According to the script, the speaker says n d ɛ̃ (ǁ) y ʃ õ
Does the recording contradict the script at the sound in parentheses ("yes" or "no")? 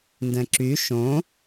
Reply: no